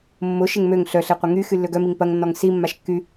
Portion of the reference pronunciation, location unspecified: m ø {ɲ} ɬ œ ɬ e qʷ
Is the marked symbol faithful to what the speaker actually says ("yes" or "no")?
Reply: no